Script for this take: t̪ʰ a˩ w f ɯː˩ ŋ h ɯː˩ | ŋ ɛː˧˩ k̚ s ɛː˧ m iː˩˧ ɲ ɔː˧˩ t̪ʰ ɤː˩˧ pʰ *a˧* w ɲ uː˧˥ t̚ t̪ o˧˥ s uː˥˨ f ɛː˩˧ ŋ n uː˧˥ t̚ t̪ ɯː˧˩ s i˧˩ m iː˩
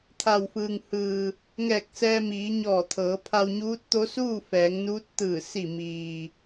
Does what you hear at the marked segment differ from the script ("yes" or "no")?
no